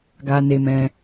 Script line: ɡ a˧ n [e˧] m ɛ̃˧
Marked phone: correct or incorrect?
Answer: correct